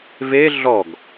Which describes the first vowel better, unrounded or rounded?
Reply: unrounded